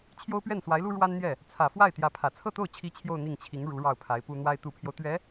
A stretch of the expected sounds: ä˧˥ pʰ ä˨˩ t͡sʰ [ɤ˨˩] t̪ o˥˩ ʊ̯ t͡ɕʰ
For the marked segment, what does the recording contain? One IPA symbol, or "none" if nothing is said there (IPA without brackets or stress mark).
ɤ˥˧